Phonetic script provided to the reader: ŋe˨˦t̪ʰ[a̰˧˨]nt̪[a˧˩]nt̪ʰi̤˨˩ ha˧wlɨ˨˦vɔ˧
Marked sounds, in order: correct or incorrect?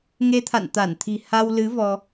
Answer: correct, correct

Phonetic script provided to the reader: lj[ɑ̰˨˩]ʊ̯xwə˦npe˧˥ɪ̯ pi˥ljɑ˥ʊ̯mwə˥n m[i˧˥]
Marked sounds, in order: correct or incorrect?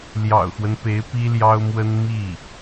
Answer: correct, incorrect: i˥˩

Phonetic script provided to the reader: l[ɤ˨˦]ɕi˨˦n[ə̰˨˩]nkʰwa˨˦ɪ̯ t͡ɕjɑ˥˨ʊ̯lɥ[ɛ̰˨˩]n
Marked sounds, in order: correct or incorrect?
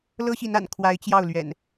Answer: incorrect: ɤ˦, incorrect: a̰˨˩, correct

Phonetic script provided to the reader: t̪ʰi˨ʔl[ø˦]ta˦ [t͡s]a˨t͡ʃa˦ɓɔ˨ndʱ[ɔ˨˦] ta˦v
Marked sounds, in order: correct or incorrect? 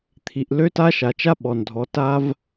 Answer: correct, incorrect: ʃ, correct

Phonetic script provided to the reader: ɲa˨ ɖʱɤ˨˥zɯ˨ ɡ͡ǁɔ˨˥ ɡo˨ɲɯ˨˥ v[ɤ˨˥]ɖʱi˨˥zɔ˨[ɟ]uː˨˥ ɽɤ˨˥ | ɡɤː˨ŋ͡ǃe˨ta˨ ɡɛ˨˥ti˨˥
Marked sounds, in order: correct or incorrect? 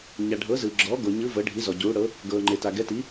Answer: correct, correct

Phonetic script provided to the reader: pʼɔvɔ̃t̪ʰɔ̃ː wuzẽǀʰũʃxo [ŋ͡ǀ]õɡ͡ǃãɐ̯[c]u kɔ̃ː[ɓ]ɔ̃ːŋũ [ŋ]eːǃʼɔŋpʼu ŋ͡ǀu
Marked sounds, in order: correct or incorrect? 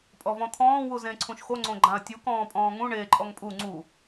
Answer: correct, incorrect: tʲ, incorrect: pʼ, incorrect: ɳ

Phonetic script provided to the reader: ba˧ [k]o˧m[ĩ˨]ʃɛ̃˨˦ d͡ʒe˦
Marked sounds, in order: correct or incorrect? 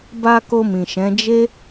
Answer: correct, correct

